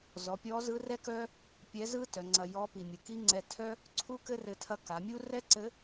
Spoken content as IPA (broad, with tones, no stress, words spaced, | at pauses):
zɔ˩˧pʲɔ˧˥zɯ˧˥ rɛ˥kœ˥ | pʲɛ˧˥zɯ˥ tœ˩˧ŋ͡ǀɐ˧jɔ˧˥ pi˩ mʲɯ˩ki˥ ŋ͡ǀɛ˧ tʰœ˥ | ǀʰu˥kɘ˥rɘ˧tʰɐ˧˥ ka˩˧mʲu˥ rɛ˥ǀɘ˧˥